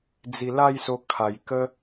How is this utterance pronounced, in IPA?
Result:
d͡z i˨˩ l a˥˧ j s o˧ kʰ a˨˩ j k ə˦

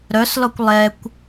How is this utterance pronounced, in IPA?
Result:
ɾ œ s l ɔ kʷ lˠ ɛ kʷ

